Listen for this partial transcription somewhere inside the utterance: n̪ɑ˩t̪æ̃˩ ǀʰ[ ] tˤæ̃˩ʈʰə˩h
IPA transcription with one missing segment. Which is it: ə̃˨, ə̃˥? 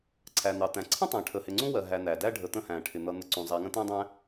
ə̃˥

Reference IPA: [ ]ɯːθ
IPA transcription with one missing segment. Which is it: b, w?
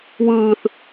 w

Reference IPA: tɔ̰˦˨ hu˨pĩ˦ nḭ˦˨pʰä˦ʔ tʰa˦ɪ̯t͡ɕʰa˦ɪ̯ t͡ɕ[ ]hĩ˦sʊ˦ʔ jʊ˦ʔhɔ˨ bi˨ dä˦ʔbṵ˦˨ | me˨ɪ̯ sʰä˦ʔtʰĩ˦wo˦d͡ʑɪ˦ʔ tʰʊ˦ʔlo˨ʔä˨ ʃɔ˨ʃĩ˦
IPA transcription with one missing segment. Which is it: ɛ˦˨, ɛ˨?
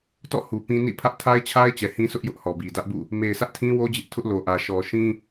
ɛ˨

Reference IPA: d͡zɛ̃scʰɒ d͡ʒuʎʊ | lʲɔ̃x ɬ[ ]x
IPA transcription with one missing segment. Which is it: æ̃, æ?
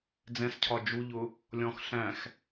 æ̃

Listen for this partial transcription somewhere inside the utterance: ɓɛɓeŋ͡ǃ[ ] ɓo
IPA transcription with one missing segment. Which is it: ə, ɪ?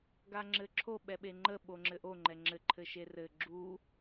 ə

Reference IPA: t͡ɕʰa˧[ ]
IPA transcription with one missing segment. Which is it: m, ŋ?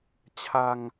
ŋ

